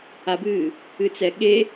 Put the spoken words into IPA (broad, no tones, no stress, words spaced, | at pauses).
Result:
abɨː | ɨt͡sɛ ɠe